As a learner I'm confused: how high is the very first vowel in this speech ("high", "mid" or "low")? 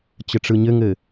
mid